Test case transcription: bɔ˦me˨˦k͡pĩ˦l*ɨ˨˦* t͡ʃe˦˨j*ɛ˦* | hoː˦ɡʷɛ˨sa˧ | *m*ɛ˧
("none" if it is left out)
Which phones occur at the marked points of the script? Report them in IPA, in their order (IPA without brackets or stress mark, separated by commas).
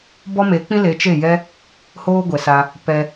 e˨˦, ɛ˦, p